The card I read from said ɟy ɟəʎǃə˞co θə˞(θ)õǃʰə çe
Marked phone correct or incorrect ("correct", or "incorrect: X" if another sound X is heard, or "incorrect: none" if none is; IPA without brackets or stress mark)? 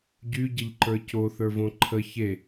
incorrect: v